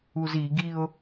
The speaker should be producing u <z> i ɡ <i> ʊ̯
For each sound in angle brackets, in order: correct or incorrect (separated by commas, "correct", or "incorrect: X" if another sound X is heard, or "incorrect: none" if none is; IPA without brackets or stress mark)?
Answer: correct, correct